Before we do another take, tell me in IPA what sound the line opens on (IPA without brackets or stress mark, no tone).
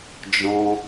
d͡ʒ